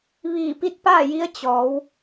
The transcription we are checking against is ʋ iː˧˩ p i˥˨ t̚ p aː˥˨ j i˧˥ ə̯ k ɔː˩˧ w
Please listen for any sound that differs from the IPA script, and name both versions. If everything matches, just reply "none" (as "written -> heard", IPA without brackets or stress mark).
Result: k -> t͡ɕ